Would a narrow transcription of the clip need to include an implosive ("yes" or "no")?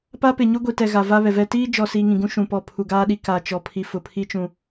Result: yes